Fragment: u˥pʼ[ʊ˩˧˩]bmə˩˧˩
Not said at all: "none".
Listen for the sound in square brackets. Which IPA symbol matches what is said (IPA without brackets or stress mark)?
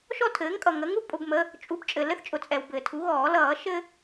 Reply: ʊ˩˧˩